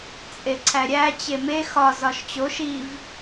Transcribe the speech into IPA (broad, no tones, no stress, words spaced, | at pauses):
t͡sʼeǀʰæɾʲæ t͡ɕeme xɒ zɒʃt͡ɕo ʃiv